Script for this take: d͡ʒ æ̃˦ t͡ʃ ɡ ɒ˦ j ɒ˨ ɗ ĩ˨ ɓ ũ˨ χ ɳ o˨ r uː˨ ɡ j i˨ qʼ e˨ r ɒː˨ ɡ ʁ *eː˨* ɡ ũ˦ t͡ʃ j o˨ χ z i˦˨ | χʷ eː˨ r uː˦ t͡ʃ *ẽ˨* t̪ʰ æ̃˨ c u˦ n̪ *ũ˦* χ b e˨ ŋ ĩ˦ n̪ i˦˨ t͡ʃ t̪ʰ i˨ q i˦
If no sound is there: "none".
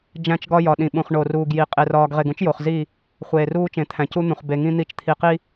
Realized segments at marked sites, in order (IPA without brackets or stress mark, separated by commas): e˨, ẽ˨, ũ˨